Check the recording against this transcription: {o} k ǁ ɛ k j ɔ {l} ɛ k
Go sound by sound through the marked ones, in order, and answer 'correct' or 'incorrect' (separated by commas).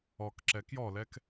incorrect, correct